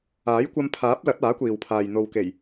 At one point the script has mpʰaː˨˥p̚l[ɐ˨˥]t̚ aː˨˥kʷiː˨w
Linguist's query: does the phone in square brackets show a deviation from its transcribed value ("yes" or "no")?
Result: no